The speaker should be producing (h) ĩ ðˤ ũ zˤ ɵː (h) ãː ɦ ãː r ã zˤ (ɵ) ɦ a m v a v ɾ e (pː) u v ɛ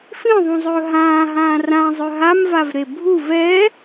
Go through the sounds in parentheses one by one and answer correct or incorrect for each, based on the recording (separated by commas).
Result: incorrect, incorrect, correct, incorrect